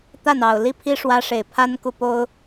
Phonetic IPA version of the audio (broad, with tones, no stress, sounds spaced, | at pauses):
t̪ a˥˨ n ɑ˨˩ ʊ̯ l i˦ pʰ i˦ ʂ w ä˦ ʂ e˨˩ ɪ̯ pʰ a˦ n k u˨ p o˦ ʊ̯